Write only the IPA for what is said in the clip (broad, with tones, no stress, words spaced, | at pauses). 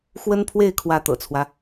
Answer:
xwə˥npʰwe˥˩ɪ̯ kʰwä˥t̪ɤ̰˨˩t͡sʰwä˦